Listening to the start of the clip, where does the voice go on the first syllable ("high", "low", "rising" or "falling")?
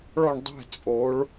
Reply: falling